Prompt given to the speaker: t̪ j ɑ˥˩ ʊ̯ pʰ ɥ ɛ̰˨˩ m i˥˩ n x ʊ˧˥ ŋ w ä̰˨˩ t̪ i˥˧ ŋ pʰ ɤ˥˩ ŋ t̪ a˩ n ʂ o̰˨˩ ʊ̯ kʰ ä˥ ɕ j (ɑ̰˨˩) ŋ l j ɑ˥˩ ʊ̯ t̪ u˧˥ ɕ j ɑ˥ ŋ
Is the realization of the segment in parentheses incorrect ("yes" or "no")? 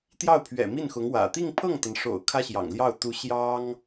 no